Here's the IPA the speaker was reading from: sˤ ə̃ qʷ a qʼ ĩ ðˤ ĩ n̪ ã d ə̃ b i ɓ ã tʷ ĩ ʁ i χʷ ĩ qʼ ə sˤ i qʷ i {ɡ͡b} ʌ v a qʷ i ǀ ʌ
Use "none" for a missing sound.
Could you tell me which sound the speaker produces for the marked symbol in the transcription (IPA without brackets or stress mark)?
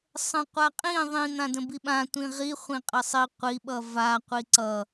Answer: ɓ